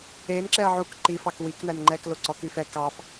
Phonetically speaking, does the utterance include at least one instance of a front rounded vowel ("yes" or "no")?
yes